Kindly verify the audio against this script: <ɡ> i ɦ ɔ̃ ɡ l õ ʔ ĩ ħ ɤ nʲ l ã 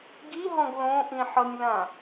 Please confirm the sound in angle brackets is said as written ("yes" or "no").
yes